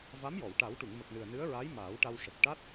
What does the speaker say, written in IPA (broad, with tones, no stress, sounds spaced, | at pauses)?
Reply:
v a˧˥ m j ɔ˨˩˨ w ʈ a˨˩˦ w ʈ u˨˩˨ ŋ m ə˨˩ k̚ n ɨ˨˩ ə̯ n ɨ˧˥ ə̯ ɹ a˧˥ j m aː˨˩˦ w ʈ a˧ w ʂ ə˨˩ k̚ ʈ a˦˥ t̚